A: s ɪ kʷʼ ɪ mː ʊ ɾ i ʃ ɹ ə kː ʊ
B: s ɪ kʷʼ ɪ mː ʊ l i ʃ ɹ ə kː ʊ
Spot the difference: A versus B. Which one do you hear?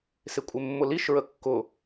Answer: B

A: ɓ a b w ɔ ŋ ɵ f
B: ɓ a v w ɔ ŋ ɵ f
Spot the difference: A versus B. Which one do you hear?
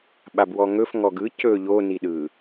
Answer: A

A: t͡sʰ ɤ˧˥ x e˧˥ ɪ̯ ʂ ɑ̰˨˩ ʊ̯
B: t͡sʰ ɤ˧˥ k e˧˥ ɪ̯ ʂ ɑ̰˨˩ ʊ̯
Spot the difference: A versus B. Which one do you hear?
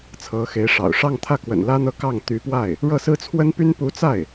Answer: A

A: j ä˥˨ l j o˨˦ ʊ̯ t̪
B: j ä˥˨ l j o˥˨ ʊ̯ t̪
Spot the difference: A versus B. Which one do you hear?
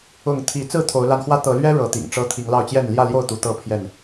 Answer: B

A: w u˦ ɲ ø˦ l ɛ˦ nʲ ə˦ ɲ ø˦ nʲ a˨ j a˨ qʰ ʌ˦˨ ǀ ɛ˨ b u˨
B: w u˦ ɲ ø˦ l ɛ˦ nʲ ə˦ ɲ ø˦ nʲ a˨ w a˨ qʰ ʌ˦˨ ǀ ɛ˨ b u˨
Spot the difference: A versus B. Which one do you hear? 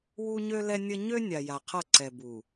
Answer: A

